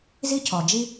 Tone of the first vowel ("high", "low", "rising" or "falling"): high